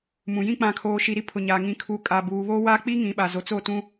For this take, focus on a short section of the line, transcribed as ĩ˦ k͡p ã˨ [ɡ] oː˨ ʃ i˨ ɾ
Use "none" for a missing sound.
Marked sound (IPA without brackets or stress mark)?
kʰ